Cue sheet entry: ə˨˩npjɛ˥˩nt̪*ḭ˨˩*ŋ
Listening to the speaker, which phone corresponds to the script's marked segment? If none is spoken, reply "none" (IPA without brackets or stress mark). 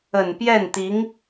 i˧˥